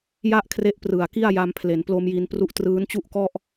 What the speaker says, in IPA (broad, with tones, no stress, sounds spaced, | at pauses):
j a˥˩ ʔ kʰ r e˦˥ ʔ p r ɯ˨˩ a̯ k i˥˩ a̯ j a˧ m pʰ l e˩˦ n p l o˧ m j i˧ n p r u˦˥ ʔ t r ɯː˦˥ n t͡ɕ u˥˩ ʔ k ɔ˥˩ ʔ